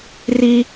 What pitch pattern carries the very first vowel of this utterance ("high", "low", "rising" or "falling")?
high